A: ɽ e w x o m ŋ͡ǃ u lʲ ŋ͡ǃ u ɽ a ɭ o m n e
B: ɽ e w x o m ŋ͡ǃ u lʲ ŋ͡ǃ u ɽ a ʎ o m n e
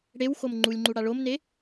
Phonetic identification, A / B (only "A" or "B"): A